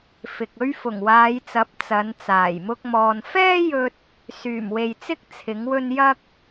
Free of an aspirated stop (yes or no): no